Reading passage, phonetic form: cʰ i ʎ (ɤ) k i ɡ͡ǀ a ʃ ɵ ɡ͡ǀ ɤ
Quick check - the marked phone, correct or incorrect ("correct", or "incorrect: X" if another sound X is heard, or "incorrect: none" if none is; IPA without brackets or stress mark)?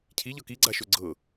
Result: correct